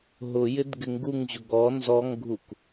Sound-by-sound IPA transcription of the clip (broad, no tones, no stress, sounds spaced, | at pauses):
ɦ ʊ j ɪ d ɡ ɪ ŋ ɡ u ŋ ʑ ʊ ɡ ɔ n z ɔ ŋ ɡʱ u k